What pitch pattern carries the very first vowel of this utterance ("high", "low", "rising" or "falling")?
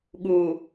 low